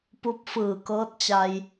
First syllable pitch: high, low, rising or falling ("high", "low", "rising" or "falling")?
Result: rising